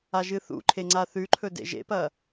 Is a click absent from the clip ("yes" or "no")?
no